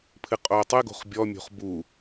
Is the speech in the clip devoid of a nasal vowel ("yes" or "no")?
yes